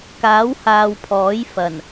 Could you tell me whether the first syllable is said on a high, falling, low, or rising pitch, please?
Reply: rising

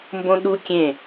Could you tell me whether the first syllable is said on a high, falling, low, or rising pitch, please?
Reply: high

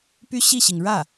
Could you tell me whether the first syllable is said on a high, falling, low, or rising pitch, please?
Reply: high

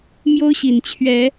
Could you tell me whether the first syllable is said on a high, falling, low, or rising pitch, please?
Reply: high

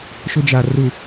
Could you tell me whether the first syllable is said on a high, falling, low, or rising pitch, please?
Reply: high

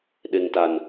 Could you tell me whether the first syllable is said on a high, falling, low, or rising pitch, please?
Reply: low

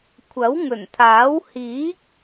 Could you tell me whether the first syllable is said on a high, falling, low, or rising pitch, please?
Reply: rising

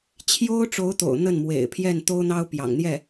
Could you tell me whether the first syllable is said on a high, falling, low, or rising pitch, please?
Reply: high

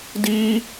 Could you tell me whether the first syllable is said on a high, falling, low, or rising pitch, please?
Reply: high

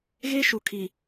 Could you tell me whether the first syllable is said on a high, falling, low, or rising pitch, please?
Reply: high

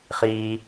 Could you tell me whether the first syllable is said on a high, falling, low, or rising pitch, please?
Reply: low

